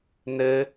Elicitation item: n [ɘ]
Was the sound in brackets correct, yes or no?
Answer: yes